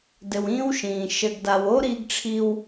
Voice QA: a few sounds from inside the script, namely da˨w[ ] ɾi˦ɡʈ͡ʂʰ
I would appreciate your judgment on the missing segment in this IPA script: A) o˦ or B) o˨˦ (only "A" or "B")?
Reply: A